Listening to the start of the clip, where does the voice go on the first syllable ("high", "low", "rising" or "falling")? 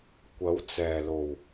rising